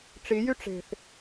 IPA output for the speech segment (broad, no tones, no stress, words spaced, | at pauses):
ʈ͡ʂijy ʈ͡ʂe̤θ